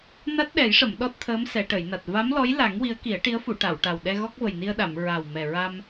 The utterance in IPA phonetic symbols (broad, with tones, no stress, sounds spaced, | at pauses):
n a˦˥ t̚ ɗ ɛ˨˩˦ j ʂ ə˨˩˨ m ɗ ɔ˦˥ t̚ t̪ʰ əː˧˥ m s ɛ˨˩˨ ʈ ə˨˩˨ j n a˨˩ t̚ v a˧˥ m l ɔ˧˥ j l a˨˩˦ ŋ w i˧˥ ə̯ k i˨˩˦ ə̯ ʈ i˧˥ ə̯ f u˨˩˨ ʈ a˨˩˨ w ʈ a˨˩ w ɗ ɛ˧ ɣ ɔ˦˥ k̚ v ə˨˩ j n i˧ ə̯ ɗ a˨˩˨ m ɹ a˨˩ w m ɛ˨˩ ɹ a˧ m